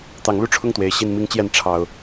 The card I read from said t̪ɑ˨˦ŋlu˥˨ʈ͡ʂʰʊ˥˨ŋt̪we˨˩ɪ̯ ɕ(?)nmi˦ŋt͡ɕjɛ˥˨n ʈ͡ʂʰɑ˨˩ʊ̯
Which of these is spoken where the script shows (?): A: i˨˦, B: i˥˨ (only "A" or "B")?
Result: B